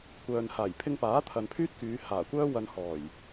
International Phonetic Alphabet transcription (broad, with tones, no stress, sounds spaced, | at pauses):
kʷ œː˨ n h aː˨˩ j pʰ ɪ˧ ŋ p aː˨˥ t̪ʰ ɐ˨ n pʰ yː˥ t̚ k yː˨˧ h aː˨˩ kʷ œː˥ w ɐ˧ n h ɔː˨˩ j